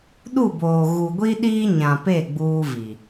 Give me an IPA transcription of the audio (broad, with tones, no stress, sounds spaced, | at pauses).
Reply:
ɗ u˦˨ b oː˨ ɣ u˨ ɡʷ i˦ ɗ iː˦ ɲ ã˨ p e˦˨ ɡ͡b uː˦ v i˨